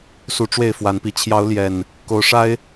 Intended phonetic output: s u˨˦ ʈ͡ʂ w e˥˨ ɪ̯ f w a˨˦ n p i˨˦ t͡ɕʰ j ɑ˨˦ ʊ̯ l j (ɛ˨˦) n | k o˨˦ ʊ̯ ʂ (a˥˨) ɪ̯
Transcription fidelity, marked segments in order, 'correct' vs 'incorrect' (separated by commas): incorrect, incorrect